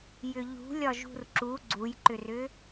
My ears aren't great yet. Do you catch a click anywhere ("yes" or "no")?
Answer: yes